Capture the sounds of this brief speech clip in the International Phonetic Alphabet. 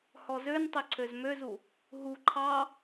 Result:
hɔzøntˤø ǀʰøzmøzu | ɦu ǃʰɑ

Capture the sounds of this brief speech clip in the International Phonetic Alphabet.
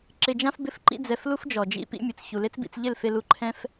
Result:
ǁɪ˧d͡ʒã˦fbɪ˦˨f ǃḭ˦d͡zɛ˧flu˦fd͡ʒɔ˨ d͡ʒḭ˦ pḭ˦mʲu˨t͡s çu˨le˦t͡sbḭ˧t͡s ʎɪ˦˨lfe˧lu˧ ǃʰɛ̃˦f

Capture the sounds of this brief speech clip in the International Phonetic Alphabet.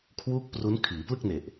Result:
kʰwuː˥˩k̚pru˦˥n kʰiː˩˦plɯ˥˩k̚ne˨˩ʔ

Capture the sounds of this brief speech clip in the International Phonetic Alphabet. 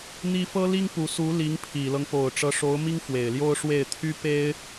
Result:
n̪i˥ fɤ˥li˥ŋpu˧˥ su˧˥ li˧˥ŋpʰi˨˩lɤ˦ŋ po˨˩ʊ̯ʈ͡ʂɤ˧˥ʂo˧˥ʊ̯mi˥ŋ fwe˨˩ɪ̯ljo˥ʊ̯ ʂwe˥˩ɪ̯ t̪ʰy˥pe˥ɪ̯

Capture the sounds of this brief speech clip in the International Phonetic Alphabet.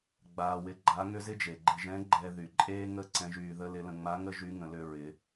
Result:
ɡ͡baː˧wɪ˧˥ɡ͡ǃa˧˥ ŋʏ˥zɪ˥d͡ʒe˩ ɡ͡ǃɪ˧ʒɛ̃˧˥ ɡ͡ǃɛ˧ ðy˩ǃʼeː˥ŋə˥ ǀɛ̃˧˥ʒyː˧ðə˥ lɪ˧˥lə̃˧ ŋ͡ma˧˥ŋə˥ ʒy˧˥ŋə̃˩˧lʏ˧ ɹɪ˩˧

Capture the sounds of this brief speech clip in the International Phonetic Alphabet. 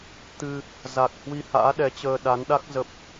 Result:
t̪ɨ˧ | za˨˩k̚ hwi˧ha̰ː˧˥ɗɛ˨˦t͡ɕəː˧ ɗa˨˦nɗa˦˥k̚ zə˦˥p̚

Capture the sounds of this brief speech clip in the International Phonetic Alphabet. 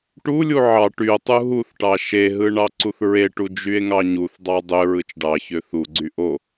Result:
ʈulʲu ʕɑ ʈyo̯tˤu ɦuθʈɑ ʃeɦɯ ɳɑǀuθɹeʈu d͡ʒye̯ŋɑɲuθdˤɑ dˤø ɹɯt͡ʃɖɑçø θuɡ͡ǀy ʔo

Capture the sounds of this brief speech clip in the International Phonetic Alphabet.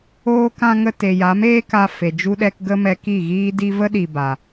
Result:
oː˧kã˧ ŋə˧te˨ja˨˦m eː˦ka˧ fe˨d͡ʒu˦ɗɛ˦k ɡə˦mɛ˧ki˦˨ ɣiː˦ di˧və˦ɗi˨ ba˨

